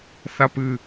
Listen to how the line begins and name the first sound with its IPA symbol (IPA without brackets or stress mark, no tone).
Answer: θ